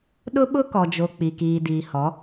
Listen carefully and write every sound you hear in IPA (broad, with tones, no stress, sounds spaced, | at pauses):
ɗ ʊ˦ ɓ ʊ˦ k ɔ˨ d͡ʒ o˨ k͡p i˨ k iː˨ d iː˨ h ɔ˨˦